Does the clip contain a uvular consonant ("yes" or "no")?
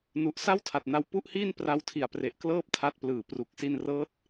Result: no